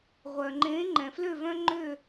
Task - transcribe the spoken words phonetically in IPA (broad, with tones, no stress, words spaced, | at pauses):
ʁʷœ˩ŋ͡ǃẽː˨˦ ŋ͡ǃɛ̃˩flø˦˨vœ̃˦ŋ͡ǃø˦˨